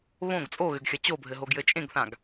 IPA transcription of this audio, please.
β õ ɡ t͡sʼ o ɣ ɘ ɡ xʲ ɐ t͡ɕ o bʱ ɘ ɦ o ɡ j ɘ t͡ʃʼ ẽ ɡ θ ã ɡ

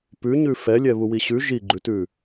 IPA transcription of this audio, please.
p ʉ ɲ ʉ f ɛ lʲ ɛ β u w i ɕ ʉ ʒ i ɡ͡ǃ ʉ t ʉ

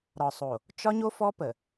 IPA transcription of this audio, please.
ɾ ɒ˨ sˤ o˨ | t͡ʃ ɒ˦ ɲ o˦ f ɔ˦ p ə˨

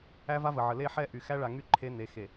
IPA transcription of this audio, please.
æ˦ v a˦ v ə˨ ʕ ə˨ l e˦ ħ ɛ˦ ʔ y˨ x æ˦ ɭ a˨ ŋ y˦ ǃʰ e˦ n e˨˦ x e˨

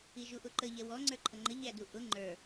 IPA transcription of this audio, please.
i ʒ u ʔ ʊ ǃ ə ʎ ɛ w ɔ ŋ͡ǀ ə˞ ǃʰ ʌ ŋ͡ǃ ə ʎ æ d u ʔ ʊ ŋ͡ǃ ə˞

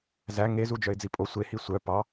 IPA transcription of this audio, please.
z æ ŋ e z u d͡ʒ œ ɪ̯ d͡z i pʼ o sʷ e h i sʷ œ p ɑ

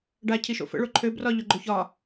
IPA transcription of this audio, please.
ɖ a cʰ i ʃ o̰ f ə̰ ɭ o ǃʰ ø b r ɒ ʎ o ɡ͡ǃ o ç ɒ

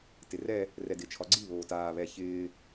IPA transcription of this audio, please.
t ɪ r ɛ | r ɛ d ɪ t͡ʃʰ ɒ ɡ͡ǀ i β oː t aː β ɛ ç ɪː

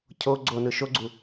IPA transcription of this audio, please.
cʰ o ɡ͡ǀ o n ɯ ʃ o ɡ͡ǀ u

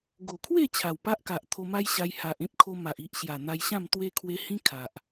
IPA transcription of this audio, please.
ɡ o˨˩ kʰ w e˥˧ t͡ɕʰ a˨˩ w p a˦ ʔ k a˨ ʔ t̪ʰ o˧ m a˦ j ɕ a˧ j h a˨ ʔ ẽ˦ p̚ kʰ o˧ m a˨ ʔ i˦ ʔ ɕ j a˨˩ n̪ a˧ j ɕ ã˥˧ m t̪ w e˦ kʰ w e˦ h ĩ˦ kʰ a˨ ʔ

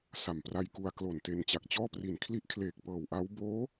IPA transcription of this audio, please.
s a˨˩ m p r a˧ j k u˧ a̯ k l o˨˩ n t e˧ n t͡ɕ a˨˩ k̚ t͡ɕ ɔː˥˩ p r i˨˩ n kʰ l i˦˥ ʔ kʰ l eː˨˩ k̚ p ɤː˨˩ w ʔ a˦˥ w b oː˦˥

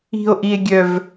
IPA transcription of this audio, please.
i̤ o̯ ʔ i e̯ ɡʲ œ v

